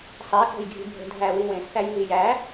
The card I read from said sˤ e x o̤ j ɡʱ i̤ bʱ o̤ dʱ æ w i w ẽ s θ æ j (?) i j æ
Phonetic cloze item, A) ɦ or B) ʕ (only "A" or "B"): A